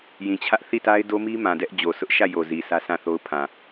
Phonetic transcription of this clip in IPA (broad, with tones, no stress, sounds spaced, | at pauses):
j ĩ˨ t͡ɕʰ ä˦ ʔ θ i˦˨ t a˦ ɪ̯ d o˦ m i˦ m ã˨ d ɛ˦ ʔ d͡ʑ o˨ s ʊ˦ ʔ ʃ ä˦˨ j o˨ z i˨ sʰ ä˦ s ã˦˨ θ o˦ ʊ̯ pʰ ã˨